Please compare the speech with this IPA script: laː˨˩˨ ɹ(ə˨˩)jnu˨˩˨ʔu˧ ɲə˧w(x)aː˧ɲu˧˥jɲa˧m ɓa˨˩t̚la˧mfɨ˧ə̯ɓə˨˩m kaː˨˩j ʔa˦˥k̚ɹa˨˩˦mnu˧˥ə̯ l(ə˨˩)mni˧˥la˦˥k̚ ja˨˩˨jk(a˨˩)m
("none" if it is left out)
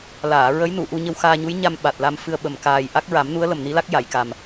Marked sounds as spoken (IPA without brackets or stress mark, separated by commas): ə˧˥, x, ə˨˩, a˨˩